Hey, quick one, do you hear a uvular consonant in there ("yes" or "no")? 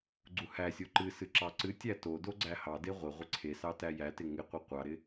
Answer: yes